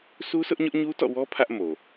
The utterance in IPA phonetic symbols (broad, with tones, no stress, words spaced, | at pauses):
su˦sʊ˦ʔ ɲʊ˦ʔɲu˦tɔ̰˦˨wɔ˦ pʰä˦ʔmo˨